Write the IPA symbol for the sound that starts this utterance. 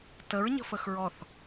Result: t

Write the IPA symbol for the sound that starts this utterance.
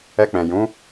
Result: ɛ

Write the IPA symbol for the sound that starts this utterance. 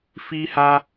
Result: f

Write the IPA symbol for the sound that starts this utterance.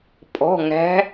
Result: pʼ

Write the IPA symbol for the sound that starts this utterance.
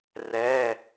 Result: r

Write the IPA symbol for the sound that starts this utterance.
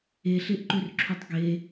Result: e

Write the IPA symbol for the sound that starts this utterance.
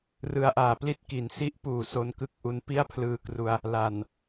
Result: r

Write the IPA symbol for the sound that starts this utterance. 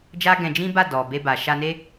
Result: d͡ʒ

